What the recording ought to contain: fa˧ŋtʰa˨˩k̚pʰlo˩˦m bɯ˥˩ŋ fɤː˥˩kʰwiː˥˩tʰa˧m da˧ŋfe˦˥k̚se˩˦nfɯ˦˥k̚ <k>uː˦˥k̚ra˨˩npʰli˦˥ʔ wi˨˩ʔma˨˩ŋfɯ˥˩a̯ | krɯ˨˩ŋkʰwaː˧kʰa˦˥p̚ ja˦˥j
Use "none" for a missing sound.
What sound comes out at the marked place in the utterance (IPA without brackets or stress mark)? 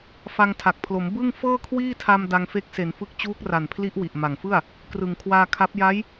t͡ɕ